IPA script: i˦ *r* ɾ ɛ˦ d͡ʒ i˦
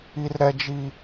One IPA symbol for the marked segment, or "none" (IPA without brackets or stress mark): r